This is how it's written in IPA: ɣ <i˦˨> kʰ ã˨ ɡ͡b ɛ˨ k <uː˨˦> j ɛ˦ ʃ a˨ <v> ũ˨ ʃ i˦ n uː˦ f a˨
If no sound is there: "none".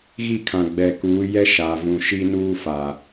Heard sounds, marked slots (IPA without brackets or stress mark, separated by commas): i˦˨, uː˨˦, v